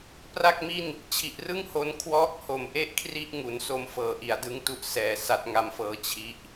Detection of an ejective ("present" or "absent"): absent